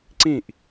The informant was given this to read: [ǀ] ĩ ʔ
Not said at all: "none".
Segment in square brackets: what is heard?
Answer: ǀ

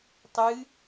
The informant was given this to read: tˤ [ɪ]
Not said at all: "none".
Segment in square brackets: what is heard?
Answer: ɨ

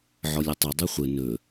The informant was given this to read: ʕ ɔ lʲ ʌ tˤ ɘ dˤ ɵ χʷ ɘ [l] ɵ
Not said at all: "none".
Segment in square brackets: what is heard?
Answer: n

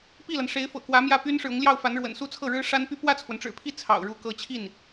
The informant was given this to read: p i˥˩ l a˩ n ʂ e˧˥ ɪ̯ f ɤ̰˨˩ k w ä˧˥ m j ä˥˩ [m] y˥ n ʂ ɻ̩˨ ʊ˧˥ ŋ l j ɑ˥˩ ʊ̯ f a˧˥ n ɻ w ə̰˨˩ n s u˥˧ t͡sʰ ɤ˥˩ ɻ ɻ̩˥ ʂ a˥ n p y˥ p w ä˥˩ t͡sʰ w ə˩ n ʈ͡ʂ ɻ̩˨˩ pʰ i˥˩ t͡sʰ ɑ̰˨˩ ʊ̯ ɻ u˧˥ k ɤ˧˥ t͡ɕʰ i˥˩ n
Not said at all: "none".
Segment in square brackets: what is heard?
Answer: p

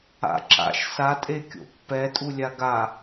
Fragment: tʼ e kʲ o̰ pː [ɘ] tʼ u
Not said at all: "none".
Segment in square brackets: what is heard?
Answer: ɛ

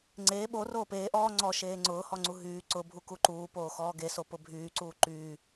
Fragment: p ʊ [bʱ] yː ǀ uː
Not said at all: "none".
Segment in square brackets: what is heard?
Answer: bʱ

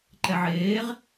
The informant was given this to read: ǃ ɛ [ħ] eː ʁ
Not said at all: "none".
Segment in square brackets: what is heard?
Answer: ʕ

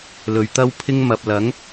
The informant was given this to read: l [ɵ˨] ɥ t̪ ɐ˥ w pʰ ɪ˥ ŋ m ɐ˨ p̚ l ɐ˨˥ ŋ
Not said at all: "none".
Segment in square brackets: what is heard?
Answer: ɵ˨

